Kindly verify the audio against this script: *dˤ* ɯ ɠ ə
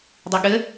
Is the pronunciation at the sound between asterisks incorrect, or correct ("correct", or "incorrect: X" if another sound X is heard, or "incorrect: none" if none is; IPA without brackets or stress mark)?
correct